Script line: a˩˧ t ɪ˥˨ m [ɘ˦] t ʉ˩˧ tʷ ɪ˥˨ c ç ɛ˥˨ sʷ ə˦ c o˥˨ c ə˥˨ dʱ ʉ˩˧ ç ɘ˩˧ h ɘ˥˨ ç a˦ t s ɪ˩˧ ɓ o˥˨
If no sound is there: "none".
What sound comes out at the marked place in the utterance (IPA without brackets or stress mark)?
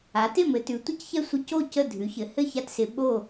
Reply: ɘ˩˧